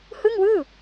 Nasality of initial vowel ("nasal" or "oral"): oral